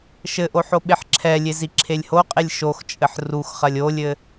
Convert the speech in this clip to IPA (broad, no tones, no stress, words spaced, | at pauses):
ʃɘʔoħ oɓeħǁʰɛlʲe ziǁʰelʲhoqʼelʲ ʃoxt͡ʃʼɘħ rux χɐlʲolʲɘ